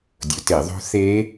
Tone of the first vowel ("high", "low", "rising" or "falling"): rising